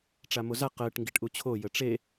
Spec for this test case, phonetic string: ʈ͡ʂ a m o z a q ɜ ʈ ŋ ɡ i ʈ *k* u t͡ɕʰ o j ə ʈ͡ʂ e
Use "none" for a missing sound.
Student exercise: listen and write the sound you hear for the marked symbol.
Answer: ʔ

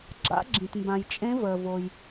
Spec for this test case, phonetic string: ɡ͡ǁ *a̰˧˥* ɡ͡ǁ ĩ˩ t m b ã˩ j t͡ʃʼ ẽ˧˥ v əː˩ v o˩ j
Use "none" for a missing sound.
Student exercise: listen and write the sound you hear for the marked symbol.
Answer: a̰˧˥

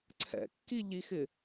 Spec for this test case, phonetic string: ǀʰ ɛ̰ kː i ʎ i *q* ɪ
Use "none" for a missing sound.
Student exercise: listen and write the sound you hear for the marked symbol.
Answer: x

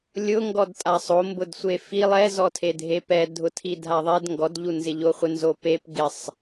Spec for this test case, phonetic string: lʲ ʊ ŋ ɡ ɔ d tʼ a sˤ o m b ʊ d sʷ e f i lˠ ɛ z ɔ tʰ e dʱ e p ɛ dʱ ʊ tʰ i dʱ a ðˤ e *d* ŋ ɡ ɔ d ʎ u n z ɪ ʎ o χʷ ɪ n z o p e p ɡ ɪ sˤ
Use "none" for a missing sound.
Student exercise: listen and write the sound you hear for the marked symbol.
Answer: d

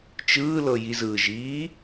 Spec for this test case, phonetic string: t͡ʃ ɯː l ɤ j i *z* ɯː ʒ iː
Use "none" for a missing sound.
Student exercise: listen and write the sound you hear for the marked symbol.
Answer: z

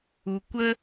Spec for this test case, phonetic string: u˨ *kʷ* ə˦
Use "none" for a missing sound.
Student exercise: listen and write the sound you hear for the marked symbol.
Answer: kʷ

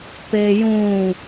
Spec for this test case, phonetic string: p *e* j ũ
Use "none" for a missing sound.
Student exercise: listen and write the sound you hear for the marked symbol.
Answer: e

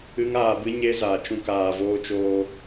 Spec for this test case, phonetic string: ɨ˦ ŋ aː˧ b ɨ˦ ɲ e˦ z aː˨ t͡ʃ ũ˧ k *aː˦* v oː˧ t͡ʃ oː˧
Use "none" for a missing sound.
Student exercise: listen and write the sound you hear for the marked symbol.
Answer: aː˨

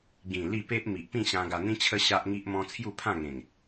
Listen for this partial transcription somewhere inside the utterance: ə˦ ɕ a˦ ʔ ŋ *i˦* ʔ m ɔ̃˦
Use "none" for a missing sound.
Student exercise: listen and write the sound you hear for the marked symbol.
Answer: i˦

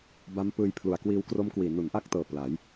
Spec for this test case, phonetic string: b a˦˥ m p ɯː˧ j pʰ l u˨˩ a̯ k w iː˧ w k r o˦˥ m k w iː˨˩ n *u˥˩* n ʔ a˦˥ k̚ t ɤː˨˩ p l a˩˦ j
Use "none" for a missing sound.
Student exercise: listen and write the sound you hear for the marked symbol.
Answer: u˩˦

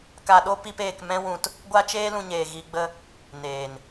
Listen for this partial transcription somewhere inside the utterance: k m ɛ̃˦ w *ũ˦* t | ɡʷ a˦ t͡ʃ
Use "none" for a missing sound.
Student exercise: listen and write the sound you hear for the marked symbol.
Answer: ũ˧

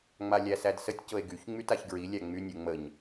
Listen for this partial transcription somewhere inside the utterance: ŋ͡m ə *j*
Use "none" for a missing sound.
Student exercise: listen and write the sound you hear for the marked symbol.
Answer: ɲ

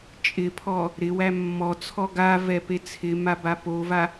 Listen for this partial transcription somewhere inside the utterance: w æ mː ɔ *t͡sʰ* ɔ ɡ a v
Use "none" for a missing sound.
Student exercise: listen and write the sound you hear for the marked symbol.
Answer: t͡sʰ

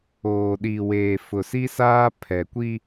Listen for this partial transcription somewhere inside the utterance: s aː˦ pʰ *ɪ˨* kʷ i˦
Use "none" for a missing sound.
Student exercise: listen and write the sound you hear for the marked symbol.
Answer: ɛ˨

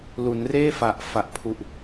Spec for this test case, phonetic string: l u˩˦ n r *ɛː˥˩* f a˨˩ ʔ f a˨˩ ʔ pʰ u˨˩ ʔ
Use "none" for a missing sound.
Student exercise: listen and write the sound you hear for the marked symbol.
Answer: eː˥˩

